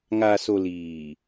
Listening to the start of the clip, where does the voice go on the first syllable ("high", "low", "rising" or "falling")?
low